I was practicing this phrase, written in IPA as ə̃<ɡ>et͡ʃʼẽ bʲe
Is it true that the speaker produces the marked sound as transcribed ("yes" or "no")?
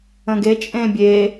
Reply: yes